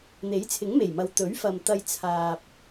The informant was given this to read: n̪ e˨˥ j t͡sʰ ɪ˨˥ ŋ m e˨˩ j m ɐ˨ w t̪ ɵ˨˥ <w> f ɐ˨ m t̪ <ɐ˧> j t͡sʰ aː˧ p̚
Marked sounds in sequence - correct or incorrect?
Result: incorrect, correct

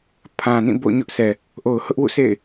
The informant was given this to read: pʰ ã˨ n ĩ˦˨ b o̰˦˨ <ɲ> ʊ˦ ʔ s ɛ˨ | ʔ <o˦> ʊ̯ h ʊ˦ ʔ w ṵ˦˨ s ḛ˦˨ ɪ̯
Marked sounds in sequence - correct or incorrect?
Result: correct, incorrect

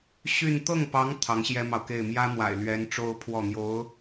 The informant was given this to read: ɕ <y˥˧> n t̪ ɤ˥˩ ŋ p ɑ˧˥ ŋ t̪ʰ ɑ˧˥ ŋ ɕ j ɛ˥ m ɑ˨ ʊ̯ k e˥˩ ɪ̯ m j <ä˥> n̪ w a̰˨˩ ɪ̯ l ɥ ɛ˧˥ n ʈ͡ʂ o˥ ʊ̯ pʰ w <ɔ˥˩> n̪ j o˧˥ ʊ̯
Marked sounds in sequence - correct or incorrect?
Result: correct, correct, correct

